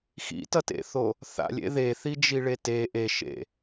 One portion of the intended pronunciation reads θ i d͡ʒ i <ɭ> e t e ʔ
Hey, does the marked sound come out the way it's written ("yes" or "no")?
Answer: yes